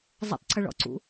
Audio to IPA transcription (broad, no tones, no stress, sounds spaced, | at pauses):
zˤ ə̰ tˤ ǀ ʏ ɭ ɔ̰ ǀ ṵ